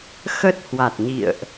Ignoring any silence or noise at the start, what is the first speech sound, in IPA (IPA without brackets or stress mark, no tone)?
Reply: x